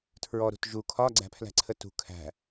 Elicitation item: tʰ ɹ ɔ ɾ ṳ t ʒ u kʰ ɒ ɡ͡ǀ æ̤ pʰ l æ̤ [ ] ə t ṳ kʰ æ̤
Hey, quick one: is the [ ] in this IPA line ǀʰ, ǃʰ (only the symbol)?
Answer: ǀʰ